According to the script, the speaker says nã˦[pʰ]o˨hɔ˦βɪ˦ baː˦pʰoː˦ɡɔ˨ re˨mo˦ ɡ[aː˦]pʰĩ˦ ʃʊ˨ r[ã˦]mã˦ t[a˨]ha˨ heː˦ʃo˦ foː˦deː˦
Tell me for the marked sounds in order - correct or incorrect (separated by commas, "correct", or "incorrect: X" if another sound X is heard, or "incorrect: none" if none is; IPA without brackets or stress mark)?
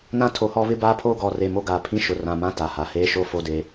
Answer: incorrect: tʰ, incorrect: aː˨, incorrect: ã˨, correct